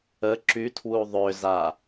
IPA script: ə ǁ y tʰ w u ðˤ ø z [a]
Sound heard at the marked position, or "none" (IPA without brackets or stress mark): a